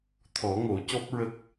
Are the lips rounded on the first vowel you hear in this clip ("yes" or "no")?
yes